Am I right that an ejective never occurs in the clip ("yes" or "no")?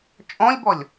no